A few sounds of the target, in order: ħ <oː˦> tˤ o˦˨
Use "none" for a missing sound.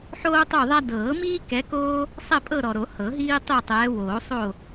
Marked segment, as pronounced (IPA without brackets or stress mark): oː˦